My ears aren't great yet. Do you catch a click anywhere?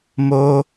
no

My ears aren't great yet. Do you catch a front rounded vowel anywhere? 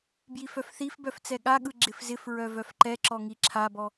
yes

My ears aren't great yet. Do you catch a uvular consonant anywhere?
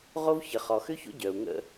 yes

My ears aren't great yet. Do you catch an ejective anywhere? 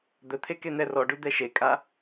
yes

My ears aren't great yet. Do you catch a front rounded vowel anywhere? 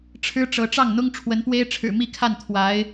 no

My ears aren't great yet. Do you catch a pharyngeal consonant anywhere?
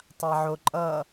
yes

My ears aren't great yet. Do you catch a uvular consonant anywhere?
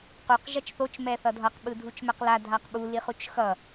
yes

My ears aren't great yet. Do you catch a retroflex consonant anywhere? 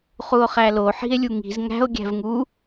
no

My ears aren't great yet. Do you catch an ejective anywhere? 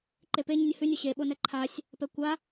no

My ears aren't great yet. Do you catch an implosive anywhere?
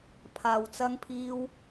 no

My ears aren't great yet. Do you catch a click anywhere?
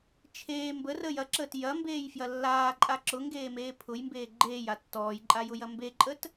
yes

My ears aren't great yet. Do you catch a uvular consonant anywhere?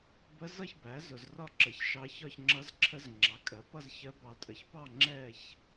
no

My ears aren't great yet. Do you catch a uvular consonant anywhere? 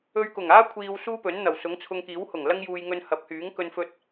no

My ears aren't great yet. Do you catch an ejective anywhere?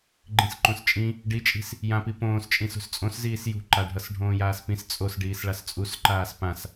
yes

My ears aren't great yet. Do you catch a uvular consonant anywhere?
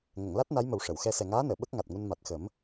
no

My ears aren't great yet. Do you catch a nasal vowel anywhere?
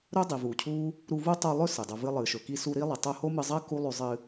no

